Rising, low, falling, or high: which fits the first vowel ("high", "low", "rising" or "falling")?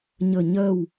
falling